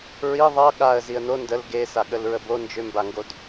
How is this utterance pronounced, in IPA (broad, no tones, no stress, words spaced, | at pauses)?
ɹi ðˤʌ ɠaə̯ziə̯ no ndəl ɡesaɠəlɹə bo nd͡ʒʏmbaŋɡod